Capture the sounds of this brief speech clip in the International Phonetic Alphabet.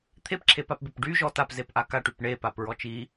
t̪ʰepǁʰepapbep ɖyʒɔ tapzep ʔakaʈyp ɳepap ɹɔt͡ʃi

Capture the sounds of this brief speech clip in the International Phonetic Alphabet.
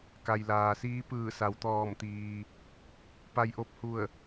ka˩jlaː˩siː˧˥ pɯː˧˩sa˩˧wt̪ɔː˧˩mt̪iː˩ | pa˧jʔo˧˩p̚hu˧˩ə̯

